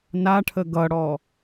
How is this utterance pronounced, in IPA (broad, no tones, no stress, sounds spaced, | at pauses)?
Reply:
n a ʈʰ ə ɡ ʌ ɽ ɔ